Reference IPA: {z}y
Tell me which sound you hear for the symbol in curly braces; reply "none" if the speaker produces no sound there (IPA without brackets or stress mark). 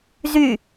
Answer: z